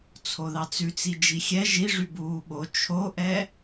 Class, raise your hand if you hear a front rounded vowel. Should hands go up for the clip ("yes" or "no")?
yes